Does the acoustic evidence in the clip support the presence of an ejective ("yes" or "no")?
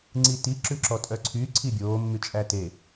yes